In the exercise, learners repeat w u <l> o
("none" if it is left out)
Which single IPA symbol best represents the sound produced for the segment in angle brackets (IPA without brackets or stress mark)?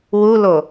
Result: l